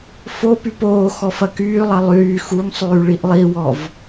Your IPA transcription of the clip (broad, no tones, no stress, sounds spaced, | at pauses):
f o p y p oː x ɔ f ɐ k yː lˠ ɐ lˠ yː x u ŋ sˤ yː ɭ i ʔ lˠ i w ɔ v